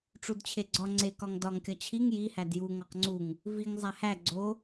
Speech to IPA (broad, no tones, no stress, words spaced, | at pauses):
ʈ͡ʂudt͡ɕʰeɡ͡ǀɒ ŋ͡ǀekɒŋ dɒŋkʲɒ t͡ɕʰiŋ jihæd ju ŋɒqŋ͡ǀuŋ | viŋ zˤæhæ ɡ͡ǀo